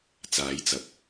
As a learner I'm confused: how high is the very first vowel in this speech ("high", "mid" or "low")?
low